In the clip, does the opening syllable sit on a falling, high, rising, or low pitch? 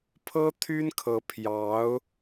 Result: high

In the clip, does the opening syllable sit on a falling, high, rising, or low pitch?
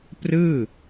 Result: falling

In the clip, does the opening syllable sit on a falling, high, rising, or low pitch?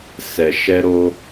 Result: low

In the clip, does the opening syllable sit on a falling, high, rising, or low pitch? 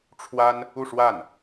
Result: high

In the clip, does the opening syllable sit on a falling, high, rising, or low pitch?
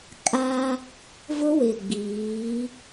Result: high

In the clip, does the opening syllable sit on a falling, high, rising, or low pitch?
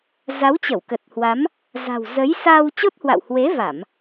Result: rising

